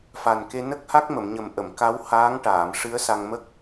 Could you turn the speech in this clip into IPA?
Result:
f a˨˩ n k e˧ n ə˦˥ k̚ h a˦˥ k̚ m ə˨˩˨ m ɲ ə˨˩ m ʔ ə˨˩˨ m k a˧˥ w h aː˧˥ ŋ ʈ aː˨˩˨ m ʂ ɨ˧˥ ə̯ s a˧ ŋ m ə˦˥ k̚

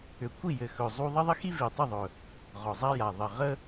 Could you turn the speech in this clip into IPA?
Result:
ʏ˨˩ kʷ i˥˨ j ɘ˨˩ x ɵ˨˩ zˤ u˦ ðˤ ɪ˦ ðˤ ɪ˦ x i˦ v i˨˩ tˤ ʏ˥˨ ðˤ ɵ˨˩ | ʁ ɔ˨˩ zˤ a˦ j a˨˩ ðˤ ɘ˨˩ ʁ ə˦

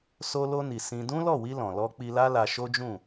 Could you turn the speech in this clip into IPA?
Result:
s o˧ l o˧ n i˨ s ĩ˧ d ũ˦ l ɔ˦˨ w i˧ l ɔ̃˨ l ɔ˧ k͡p i˧ l a˦ l a˧ ʃ o˦ d͡ʒ ũ˦˨

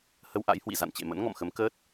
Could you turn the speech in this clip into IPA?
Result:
h ə˧ w ʔ a̰˧˥ j h w ḭ˧˨ z a̰˧˨ n t͡ɕ ḛ˧˨ m ə̰˧˥ n ŋ ɔ̰˧˨ m x ə˨˦ m k əː˦˥ t̚

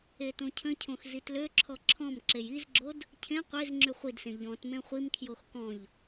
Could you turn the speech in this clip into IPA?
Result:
e t õ cʰ ə̃ cʰ õ x z i t l ø ǁʰ ɔ ǁʰ ɔ̃ m ǁ e j i z ɡ͡ǁ o d | cʰ ẽ qʷ e z ŋ͡ǁ y χʷ i d s ẽ ʎ ɔ̃ t m ẽ χʷ i m kʰ j o x k ɔ̃ ʎ

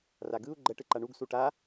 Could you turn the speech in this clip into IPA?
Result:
r a ɡ ɯ u̯ ɡ͡ǃ ɛ ʈ ɯ ǃ a ɳ u ɡ s u ʈ a

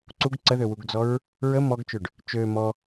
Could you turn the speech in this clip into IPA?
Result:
ǀ u ɡ ǀ ə ð ø w u ɡ d͡z ɔ ɹ | ɹ ə m ɔ ɡ t͡ʃ ø ɖ | t͡ʃ ø m ɔ

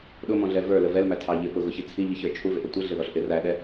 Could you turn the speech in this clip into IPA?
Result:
ɗ ʊ m ɔ̃ ɮ ɛ v ə˞ l ə v ɛ l m æ tʰ ɑ ʎ ɪ p ʊ ɣ ʊ ç i t͡sʰ i ʎ i ç ə˞ t͡ʃʰ u v ɪ ʔ ʌ tʷ ɪ ɮ ɪ ð ɔ ɬ ʔ ɪ r æ ɗ ɛ

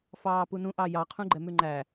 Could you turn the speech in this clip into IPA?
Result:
f ɑː p u n ũ ʔ ɑ j ɑ qʰ ũ ɡ͡ǃ ɛ m ʉ ŋ͡ǃ æ

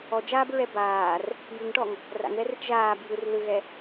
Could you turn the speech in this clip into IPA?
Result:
ɔ d͡ʒ aː b ɹ ɛ b aː r | j ɯ ŋ ʈ ɔ ŋ | r a̰ ŋ ð ɛ r i ʈ ʒ aː b j ɯ r l ɯ ɣ ɛ

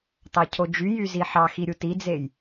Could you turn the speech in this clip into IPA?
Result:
t ɑ cʰ o d͡ʒ y j y z i ħ ɑ x i ɾʲ u t i d͡z e j

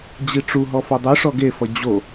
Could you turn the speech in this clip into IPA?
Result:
d͡ʑ i ʈ͡ʂ u ɦ ɔ f o dˤ ɯ ʂ ɔ ɡ e f ʌ d͡ʑ o

